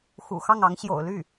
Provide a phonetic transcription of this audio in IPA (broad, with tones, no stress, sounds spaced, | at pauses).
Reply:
x ṵ˨˩ x ɑ˥˩ ŋ ɑ˧˥ ŋ ɕ j o̰˨˩ ʊ̯ l y˥˩